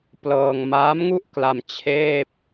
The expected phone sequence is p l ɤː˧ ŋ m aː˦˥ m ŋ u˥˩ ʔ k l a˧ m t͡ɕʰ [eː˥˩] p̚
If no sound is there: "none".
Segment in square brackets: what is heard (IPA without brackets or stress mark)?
eː˥˩